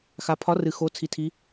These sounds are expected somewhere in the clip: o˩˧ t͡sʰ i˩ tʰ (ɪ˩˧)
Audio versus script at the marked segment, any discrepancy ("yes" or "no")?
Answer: yes